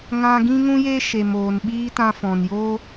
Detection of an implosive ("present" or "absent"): present